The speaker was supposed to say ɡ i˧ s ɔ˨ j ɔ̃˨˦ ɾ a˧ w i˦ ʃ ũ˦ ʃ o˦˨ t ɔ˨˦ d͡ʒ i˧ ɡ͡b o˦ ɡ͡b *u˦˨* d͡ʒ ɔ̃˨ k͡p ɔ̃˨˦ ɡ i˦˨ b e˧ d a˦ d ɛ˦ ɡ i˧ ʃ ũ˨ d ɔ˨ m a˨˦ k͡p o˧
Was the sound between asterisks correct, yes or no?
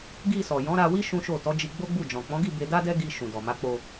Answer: yes